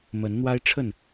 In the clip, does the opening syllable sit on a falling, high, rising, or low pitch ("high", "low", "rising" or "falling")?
rising